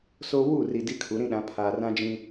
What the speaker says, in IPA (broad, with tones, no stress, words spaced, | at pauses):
soː˦ wuː˦˨ri˨ di˦kʰu˨˦ɾĩ˦ɗã˨˦ pʰaː˨rã˦ d͡ʒĩ˦